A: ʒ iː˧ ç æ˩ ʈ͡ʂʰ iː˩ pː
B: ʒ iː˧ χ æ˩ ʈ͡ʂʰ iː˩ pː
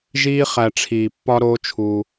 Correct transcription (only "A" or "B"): B